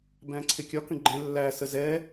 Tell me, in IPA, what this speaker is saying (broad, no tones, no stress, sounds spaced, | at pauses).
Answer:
b æ̃ ǀʰ ɪ kʲ ɒ k ə̃ ɡ͡ǃ ɛ̃ lː æ s ə z ɛ